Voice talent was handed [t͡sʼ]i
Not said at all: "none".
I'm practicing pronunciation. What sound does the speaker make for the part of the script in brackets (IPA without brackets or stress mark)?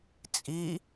t͡sʼ